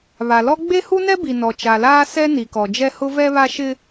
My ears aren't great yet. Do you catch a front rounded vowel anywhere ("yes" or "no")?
no